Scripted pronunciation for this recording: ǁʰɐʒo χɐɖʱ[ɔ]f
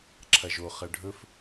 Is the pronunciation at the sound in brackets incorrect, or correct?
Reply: incorrect